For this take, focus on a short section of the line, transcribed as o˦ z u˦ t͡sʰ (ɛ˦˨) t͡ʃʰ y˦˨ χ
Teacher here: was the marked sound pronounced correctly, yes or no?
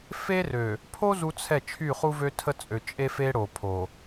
yes